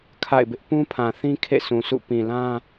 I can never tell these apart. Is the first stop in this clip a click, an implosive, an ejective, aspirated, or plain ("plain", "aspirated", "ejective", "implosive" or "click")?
aspirated